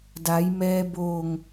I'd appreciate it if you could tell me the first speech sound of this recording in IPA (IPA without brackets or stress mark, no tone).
d